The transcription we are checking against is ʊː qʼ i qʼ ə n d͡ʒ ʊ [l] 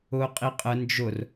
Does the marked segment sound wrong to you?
yes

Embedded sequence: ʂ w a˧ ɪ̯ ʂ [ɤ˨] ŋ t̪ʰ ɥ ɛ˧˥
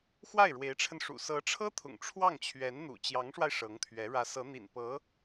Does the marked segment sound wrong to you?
yes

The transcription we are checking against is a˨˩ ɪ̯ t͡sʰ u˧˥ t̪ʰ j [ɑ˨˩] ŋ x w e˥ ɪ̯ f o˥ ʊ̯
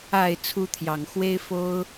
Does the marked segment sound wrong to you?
no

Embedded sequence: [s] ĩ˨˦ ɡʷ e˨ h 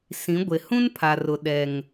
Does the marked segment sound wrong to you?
no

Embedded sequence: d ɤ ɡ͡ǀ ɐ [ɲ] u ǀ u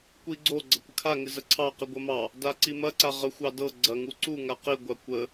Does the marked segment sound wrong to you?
yes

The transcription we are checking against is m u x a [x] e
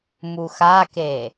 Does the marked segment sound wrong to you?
yes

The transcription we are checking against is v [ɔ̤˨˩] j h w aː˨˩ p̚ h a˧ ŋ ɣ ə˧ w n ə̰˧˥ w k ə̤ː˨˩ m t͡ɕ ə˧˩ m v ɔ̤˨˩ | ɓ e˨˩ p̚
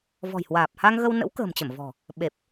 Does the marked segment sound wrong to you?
no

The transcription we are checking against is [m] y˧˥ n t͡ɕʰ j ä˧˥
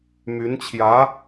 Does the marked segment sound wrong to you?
no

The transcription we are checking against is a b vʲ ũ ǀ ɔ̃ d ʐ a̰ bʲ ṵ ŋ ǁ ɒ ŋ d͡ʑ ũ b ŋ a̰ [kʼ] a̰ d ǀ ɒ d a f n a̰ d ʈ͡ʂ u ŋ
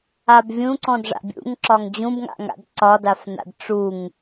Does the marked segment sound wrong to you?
yes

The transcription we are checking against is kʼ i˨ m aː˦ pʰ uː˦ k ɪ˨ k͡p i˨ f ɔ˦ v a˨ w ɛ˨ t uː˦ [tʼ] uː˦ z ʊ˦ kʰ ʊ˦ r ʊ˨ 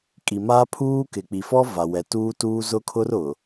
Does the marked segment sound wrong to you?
yes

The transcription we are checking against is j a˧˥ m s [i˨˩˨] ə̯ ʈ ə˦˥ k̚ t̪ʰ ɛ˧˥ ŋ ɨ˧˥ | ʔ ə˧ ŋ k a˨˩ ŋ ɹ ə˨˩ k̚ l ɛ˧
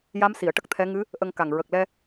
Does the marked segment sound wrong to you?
no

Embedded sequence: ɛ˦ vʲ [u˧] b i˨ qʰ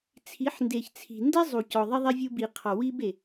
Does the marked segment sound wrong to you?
no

